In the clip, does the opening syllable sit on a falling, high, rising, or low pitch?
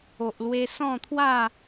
low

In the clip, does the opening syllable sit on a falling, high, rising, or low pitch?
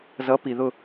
rising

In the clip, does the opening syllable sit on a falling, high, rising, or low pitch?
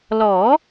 rising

